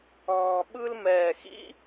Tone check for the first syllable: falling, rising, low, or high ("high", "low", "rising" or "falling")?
low